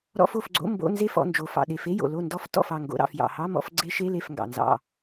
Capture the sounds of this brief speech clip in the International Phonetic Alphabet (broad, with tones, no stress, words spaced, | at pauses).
ɾɔ̰˧˥˧fo˥˨fɡ͡ǀo̰˧˥˧ mbo̰˧˥˧ nze˥˨fɔ̰˥˨nd͡ʒo˩fɑ̰˩ ɗe˩fe˧˥˧jo̰˩ lo˥˨ndɔ˦˥f tɔ̰˥˨fɑ˥˨ŋɡo̰˧˥˧ ɾɑ̰˥˨f jɑ̰˩hɑ˧˥˧mɔ̰˥˨f ɡ͡ǀe˦˥ʃe˧˥˧le˥˨f ŋɡɑ̰˩nzɑ̰˥˨